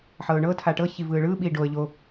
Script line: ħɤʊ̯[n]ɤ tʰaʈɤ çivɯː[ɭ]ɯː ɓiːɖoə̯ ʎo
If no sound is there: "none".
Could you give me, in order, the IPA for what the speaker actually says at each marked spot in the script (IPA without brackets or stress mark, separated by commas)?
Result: ɳ, ɭ